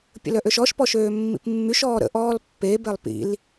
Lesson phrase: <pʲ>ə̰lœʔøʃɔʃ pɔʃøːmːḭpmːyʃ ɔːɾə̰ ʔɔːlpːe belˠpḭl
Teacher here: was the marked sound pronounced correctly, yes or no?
yes